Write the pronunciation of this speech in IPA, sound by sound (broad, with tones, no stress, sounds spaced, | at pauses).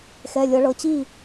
x ɛ˩˧˩ lʲ ɤ˨˩˦ ɭ ɤ˩˧˩ t͡ɕ i˥˩